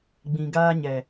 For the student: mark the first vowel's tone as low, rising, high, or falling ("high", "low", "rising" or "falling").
low